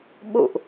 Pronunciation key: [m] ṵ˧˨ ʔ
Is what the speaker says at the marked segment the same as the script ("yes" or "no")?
no